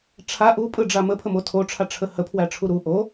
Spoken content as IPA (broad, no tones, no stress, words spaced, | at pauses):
ʈ͡ʂʰa ʔupʼɯɖ͡ʐa məpʰəmo tʰoʈ͡ʂʰaʈ͡ʂʰə həpʰwæʈ͡ʂʰu ɾu ʔo